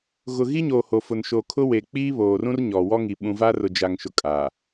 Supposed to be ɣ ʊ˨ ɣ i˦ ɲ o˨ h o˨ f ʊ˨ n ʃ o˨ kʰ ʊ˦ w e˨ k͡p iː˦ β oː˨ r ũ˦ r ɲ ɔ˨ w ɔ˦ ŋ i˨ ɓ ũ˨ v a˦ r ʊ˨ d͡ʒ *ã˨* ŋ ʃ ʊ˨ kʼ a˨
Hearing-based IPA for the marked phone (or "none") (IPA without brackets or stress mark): a˨